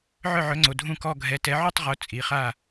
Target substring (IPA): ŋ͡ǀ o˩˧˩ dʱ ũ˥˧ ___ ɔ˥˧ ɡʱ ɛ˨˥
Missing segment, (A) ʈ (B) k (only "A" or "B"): B